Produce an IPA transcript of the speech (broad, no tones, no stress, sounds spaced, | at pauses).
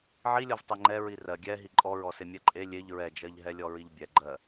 ʕ i lʲ ɔ v tˤ ɛ ŋ͡ǃ ɛ ɹ i r ɜ ɡʲ ɛ ɦ i ǃʼ ɔ ɹ ɔ s e mʲ ɛ ǃʼ e lʲ e ʎ ɹ ɛ d͡ʒ ɜ ʎ ɦ ɛ lʲ ɔ ɹ i ʎ bʲ ɛ ɡ͡ǃ ɜ